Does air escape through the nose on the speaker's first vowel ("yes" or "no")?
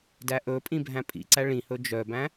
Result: no